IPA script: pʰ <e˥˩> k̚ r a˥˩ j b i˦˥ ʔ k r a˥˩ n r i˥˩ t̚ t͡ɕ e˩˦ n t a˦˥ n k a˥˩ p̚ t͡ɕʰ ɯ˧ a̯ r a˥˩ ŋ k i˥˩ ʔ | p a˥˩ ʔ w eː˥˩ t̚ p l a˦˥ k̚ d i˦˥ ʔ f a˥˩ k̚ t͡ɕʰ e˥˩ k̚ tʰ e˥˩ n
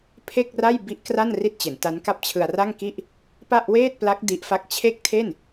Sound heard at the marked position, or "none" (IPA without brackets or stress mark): e˥˩